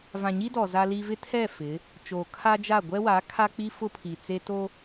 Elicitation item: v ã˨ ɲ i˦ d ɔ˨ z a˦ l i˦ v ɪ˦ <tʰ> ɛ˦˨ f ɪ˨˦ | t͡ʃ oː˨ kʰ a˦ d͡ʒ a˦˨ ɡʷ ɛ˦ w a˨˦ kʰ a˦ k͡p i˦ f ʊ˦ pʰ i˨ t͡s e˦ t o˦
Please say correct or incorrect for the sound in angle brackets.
correct